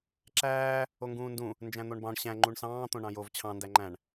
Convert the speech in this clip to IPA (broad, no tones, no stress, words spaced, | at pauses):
ǁæː | oŋɡũːndũ | nd͡ʒæ̃n̪oɳbɑ̃ɳ ɕæ̃ ŋ͡ǃuɳsɑ̃ː t̪õɳɑ̃jov t͡ɕʰɑ̃ ndæŋ͡ǃæ̃ɳ